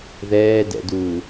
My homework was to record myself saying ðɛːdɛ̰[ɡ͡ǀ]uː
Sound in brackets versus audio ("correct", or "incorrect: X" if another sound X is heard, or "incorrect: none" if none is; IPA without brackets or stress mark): incorrect: d